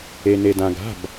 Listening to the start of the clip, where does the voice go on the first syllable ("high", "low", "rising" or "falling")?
low